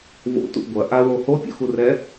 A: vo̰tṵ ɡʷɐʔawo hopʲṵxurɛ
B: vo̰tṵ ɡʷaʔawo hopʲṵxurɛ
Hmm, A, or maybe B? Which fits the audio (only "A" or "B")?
A